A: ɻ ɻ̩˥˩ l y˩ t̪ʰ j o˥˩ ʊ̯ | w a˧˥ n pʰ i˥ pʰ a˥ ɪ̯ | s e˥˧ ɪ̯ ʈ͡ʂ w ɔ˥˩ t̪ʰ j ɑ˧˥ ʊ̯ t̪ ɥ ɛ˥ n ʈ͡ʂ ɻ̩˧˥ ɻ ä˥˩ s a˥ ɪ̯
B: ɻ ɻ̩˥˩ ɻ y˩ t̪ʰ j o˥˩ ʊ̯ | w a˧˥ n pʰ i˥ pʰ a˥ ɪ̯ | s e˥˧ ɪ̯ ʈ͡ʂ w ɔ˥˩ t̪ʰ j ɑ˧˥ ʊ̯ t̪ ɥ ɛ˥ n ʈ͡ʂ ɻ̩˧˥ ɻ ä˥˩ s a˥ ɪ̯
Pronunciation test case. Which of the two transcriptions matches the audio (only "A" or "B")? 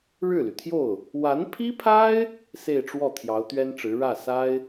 A